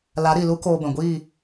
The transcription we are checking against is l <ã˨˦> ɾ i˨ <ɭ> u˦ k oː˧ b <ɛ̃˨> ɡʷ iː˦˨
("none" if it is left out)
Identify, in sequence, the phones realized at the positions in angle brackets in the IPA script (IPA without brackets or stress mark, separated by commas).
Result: a˨˦, l, ɛ̃˨